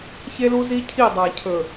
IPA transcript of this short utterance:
ç e˦ l u˦ z i˦ cʰ i˦˨ dˤ a˨ cʰ ɵ˨

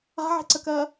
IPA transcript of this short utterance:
a̤ ʕ e̤ ǀ ə k ɜː

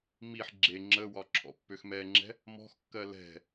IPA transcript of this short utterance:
m i ħ ɡ͡ǁ e ŋ͡ǁ ə w ɒ ǁʰ ɔ̰ pː ø x m ɛ ŋ͡ǁ ɛ̤ | m ɔ̤ x kː ɜ l ɛ̤

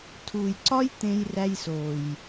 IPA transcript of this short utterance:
tʰ uː˨ j ǀ ɒ˦ j t̪ ẽ˦ j r æ˦ j s oː˨ j

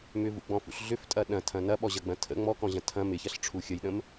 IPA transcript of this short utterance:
m ʏ v ṵ ɡ͡b ɔ̃ f ṵ ɬ ɮ ʏ f tʼ ɐ ɗ ɐ̃ tʰ ɐ̃ n ɐ ɓ ɔ ʑ ɐ ɡ͡b ɐ̃ tʰ ə̰ ŋ͡m ɔ k ɔ̃ ʑ ɐ̃ tʰ ɐ̃ m ɪ ç ɐ ɬ ʈ͡ʂʰ u xʲ ə j ɗ ə̃ m

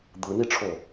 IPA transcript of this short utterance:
d̪ ɯ n i ʈ͡ʂʰ o

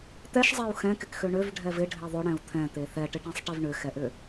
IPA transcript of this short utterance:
t̪ ɛ ʃ zˤ e u̯ x ɛ̃ k ɪ k x ø ɳ ø v ɖʱ ɛ v ɪ ɖʱ e ðˤ ʏ ɽ ɛ̃ u̯ t̪ʰ ɛ̃ t̪ e θ ɛ ʈ ɪ ʈ ɛ̃ sˤ ʈ e v ɳ ʏ x ɛ ʔ ʏ

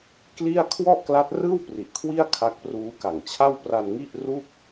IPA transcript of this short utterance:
k l i˥˩ a̯ kʰ w ɔ˥˩ ʔ k l a˦˥ t̚ r ɯː˥˩ w p r i˨˩ ʔ kʰ w i˥˩ a̯ kʰ a˦˥ k̚ p r uː˦˥ k a˨˩ ŋ t͡ɕʰ a˥˩ w p r a˧ n ŋ i˥˩ ʔ r u˥˩ k̚

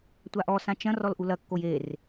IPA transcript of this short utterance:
tʷ a ʔ ɔ s ã t͡ʃ ɐ̃ r ɔ l ʔ u l ɐ kː o j e r

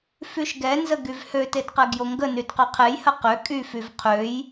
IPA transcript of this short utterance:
f y ʃ ɡ ɛ n z ə ɡ y v h ø t e d q ɛ ɡ j o ŋ ɡ ə n y d q ø qʰ e j h ə q ø kʼ y f y v qʰ ø j

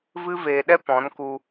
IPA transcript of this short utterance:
v ɨ˦ v eː˧ ɗ ɛ˦ p ɔ̃˨˦ n k u˧

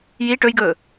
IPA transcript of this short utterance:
j i ʈ ɵ j ɡ ɵː

